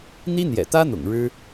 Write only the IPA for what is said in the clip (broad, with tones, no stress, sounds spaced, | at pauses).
n̪ i˥ n̪ j ɛ̰˨˩ t̪ ä˥ n̪ ʊ̰˨˩ ŋ ɻ ɻ̩˥